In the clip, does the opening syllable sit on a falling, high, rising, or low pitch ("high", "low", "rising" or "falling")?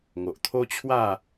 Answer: low